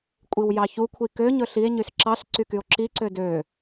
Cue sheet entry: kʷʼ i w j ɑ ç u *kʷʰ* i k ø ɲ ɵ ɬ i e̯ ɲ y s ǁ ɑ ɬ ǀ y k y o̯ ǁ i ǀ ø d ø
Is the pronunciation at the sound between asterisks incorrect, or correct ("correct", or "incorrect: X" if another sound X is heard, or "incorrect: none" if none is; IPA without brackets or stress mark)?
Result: correct